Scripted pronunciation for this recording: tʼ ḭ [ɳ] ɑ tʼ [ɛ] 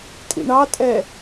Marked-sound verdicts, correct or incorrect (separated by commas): correct, correct